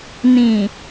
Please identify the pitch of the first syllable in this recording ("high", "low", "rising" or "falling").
low